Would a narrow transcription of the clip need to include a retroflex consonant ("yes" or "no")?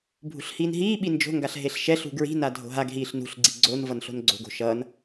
no